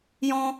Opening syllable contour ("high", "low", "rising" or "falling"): high